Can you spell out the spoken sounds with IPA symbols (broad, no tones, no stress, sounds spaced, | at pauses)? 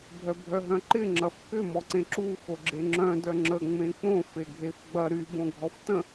bʱ œ bʱ œ ɦ œ̃ ǃ ɪ ŋ͡ǁ ɐ f k ʏ m ɔ ǀ ẽ ǁ u x o ɡ͡ǁ e ŋ͡ǁ œ̃ d œ ŋ͡ǁ ə ŋ͡m ẽ k͡p õ f e ɡʱ e f ɡ͡b ɐ ɾ y b õ ɡʱ ɔ f t ə̃